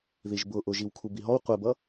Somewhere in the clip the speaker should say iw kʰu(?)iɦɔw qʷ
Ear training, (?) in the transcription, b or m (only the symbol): b